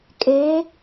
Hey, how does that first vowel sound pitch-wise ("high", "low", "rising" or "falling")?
rising